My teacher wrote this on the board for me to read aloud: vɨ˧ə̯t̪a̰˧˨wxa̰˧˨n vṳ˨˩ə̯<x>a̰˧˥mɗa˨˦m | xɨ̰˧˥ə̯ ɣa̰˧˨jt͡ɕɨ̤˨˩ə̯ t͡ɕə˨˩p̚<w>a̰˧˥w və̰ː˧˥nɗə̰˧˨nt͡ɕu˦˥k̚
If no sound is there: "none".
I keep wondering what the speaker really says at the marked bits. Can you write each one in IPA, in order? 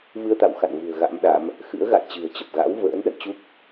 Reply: ɣ, ɣ

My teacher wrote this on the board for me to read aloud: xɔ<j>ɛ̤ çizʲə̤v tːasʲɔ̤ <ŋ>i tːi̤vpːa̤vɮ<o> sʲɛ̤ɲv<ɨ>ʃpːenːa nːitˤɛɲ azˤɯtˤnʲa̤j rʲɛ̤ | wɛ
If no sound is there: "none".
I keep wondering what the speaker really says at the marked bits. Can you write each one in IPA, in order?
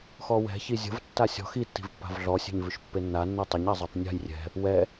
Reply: w, x, ɔ, ʉ

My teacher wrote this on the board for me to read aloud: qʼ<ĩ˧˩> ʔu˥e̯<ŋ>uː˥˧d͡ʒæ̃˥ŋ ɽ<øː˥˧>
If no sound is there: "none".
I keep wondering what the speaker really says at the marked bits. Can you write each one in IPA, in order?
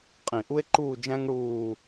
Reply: ĩ˧˩, ǃ, uː˥˧

